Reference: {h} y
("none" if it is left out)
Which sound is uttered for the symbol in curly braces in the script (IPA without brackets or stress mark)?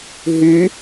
ɦ